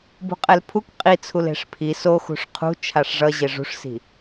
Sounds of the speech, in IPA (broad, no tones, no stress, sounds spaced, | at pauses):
b ṳ qʼ ɛ l pʰ u k qʼ i t͡sʰ u l e̤ ʂ pʰ i s o x ṳ ʂ qʰ ṳ t͡ʃʰ a ʂ ʐ ʌ ʑ e ʐ ṳ ʂ s i̤